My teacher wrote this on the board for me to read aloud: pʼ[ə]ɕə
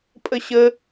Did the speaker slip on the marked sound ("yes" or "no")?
no